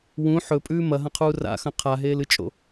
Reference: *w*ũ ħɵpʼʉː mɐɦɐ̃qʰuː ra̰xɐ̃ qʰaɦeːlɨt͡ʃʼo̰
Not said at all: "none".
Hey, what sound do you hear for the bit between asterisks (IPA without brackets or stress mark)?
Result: w